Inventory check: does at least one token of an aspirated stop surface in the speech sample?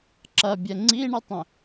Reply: no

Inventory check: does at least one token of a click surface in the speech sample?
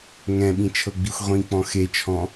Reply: no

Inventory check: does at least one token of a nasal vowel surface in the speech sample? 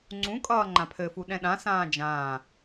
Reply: yes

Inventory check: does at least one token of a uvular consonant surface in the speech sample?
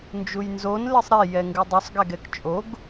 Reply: no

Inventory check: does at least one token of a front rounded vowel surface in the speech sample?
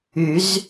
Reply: yes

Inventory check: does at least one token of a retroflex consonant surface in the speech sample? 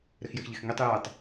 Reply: no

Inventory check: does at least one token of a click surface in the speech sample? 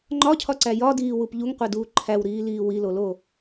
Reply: yes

